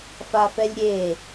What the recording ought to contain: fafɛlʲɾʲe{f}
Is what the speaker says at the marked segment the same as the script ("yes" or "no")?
no